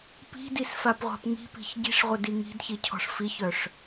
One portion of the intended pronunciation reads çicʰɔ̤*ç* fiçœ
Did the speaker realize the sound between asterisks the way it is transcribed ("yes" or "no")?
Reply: no